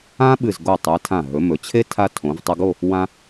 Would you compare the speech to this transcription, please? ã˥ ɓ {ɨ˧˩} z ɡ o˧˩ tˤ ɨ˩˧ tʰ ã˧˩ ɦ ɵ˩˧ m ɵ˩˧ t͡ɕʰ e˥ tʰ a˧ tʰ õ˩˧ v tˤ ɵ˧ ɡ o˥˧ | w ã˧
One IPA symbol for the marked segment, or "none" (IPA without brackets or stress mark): ɨ˧˩